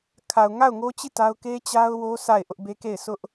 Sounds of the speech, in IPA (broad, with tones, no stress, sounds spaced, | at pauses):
kʰ a˨ ʊ̯ ŋ a˦˨ ʊ̯ ŋ o˦ t͡ɕ i˦˨ t a˦ ʊ̯ k e˦ t͡ɕ a˦ ʊ̯ w o˦ sʰ a˦˨ ɪ̯ ʔ ʊ˦ ʔ b e˦ k e˦˨ ɪ̯ sʰ ʊ˦ ʔ